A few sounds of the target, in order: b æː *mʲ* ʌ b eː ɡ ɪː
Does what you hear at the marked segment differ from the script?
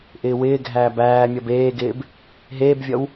no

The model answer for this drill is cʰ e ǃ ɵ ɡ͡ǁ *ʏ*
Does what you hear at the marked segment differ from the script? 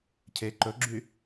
yes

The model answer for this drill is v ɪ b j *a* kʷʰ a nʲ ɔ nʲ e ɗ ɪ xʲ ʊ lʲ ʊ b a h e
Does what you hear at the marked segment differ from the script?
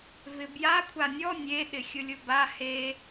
no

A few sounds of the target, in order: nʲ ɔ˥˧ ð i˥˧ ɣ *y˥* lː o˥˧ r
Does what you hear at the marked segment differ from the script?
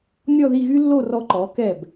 no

